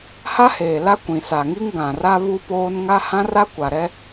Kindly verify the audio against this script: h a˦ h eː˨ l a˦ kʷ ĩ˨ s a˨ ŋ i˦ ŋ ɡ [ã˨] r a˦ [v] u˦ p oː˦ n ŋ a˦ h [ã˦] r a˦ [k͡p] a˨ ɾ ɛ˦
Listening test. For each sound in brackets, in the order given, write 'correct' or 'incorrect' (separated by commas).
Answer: correct, incorrect, correct, incorrect